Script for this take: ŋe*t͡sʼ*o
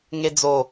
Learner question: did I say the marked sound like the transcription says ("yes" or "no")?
no